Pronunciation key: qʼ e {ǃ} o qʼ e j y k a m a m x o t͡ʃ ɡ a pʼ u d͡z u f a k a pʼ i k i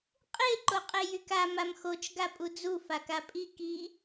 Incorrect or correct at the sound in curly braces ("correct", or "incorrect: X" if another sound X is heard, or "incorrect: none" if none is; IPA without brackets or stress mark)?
correct